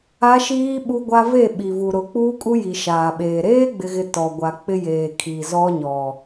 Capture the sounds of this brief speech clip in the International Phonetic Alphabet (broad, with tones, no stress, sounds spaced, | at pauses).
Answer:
a˦ ʃ iː˦ ɓ u˦ ɡʷ a˦ v e˦˨ ɓ i˨ v u˨ ɾ ʊ˨˦ k͡p uː˦ kʼ u˦ j i˨ ʃ aː˨ ɓ eː˨ ɾ eː˦ ɡ͡b ɪ˨ ɣ ɪ˨ t ɔ˨ ɡʷ a˨ k͡p ɪ˦ j eː˨ kʰ i˨ z ɔ˦ ɲ ɔ˨